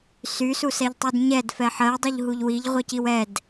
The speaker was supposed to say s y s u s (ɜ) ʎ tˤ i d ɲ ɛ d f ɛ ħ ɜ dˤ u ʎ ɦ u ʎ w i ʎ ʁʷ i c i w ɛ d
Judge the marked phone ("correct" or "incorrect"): incorrect